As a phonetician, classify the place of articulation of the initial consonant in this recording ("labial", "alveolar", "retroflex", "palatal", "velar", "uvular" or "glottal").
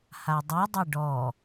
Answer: glottal